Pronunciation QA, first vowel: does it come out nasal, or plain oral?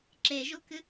oral